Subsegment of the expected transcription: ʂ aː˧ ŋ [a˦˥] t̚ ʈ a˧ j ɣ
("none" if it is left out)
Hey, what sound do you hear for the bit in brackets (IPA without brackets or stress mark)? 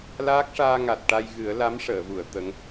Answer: a˨˩